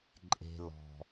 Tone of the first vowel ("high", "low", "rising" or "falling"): low